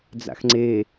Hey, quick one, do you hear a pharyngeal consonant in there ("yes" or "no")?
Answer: no